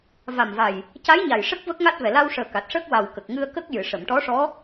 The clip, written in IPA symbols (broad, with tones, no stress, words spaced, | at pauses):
va˨˩mva˨˩j | ca˧˥jɲa˨˩j ʂə˦˥k̚ və˦˥k̚ŋa˦˥t̚vɛ˨˩ la˧wʂəː˨˩ ka˨˩t̚ʂəː˦˥k̚ wa˨˩w kə˨˩k̚ŋɨ˧ə̯ kə˦˥k̚jɨ˨˩˨ ʂə˨˩˨mʈɔ˧˥ʂɔ˧˥